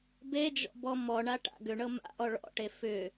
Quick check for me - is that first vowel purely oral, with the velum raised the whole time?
yes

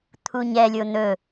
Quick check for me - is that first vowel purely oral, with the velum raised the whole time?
yes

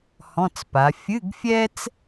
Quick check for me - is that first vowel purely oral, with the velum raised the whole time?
no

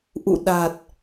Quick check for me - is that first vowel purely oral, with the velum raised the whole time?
yes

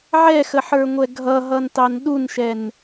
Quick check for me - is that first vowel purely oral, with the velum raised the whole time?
yes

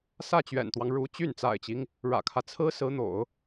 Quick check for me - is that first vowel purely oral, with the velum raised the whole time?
yes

